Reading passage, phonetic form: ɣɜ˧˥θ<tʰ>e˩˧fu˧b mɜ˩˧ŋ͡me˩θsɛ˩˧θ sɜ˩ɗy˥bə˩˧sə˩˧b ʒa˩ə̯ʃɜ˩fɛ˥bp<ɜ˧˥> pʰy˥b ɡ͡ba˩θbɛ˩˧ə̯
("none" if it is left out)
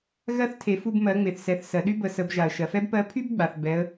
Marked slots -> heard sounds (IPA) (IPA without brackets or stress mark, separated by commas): tʰ, ɜ˧˥